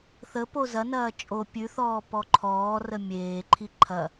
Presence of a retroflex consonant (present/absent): absent